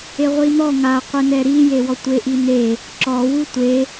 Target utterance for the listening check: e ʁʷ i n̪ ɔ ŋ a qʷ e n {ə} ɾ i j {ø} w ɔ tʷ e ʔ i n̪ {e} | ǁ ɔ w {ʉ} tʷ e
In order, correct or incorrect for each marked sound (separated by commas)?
incorrect, incorrect, correct, incorrect